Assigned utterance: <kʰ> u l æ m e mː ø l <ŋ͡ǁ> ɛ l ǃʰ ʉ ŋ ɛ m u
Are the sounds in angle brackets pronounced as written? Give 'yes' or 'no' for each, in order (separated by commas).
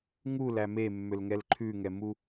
no, no